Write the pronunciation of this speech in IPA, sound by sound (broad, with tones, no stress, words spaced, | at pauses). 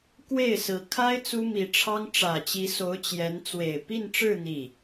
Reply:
kwe˥˩ɪ̯sɹ̩˧˥ kʰa˥ɪ̯ t͡su˥mi˧˥ʈ͡ʂʰɑ˥ŋ ʈ͡ʂä˨˩t͡ɕi˧˥so˧˥ʊ̯ t͡ɕjɛ˧˥n t͡swe˨˩ɪ̯ pi˥˧nʈ͡ʂɻ̩˥˧ n̪i˥˩